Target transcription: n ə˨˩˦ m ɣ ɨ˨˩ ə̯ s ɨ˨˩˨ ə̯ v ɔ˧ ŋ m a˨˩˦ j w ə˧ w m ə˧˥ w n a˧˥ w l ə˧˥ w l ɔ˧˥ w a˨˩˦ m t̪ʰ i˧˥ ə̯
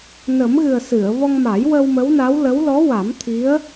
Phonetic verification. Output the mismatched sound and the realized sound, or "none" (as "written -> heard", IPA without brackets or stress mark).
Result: none